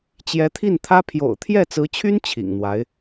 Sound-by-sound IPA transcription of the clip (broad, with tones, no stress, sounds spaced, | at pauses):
t͡ɕ j ɛ˧˥ t̪ʰ i˥˩ n t̪ʰ ä˥ pʰ j o̰˨˩ ʊ̯ t̪ʰ j ɛ˥˩ t͡s ɹ̩˧˥ t͡ɕʰ y˥ n t͡ɕʰ ḭ˨˩ ŋ n̪ w a˧˥ ɪ̯